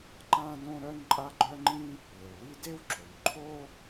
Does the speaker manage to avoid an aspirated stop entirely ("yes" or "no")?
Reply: no